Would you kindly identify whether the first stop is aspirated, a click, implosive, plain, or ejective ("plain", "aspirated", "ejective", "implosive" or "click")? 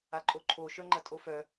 click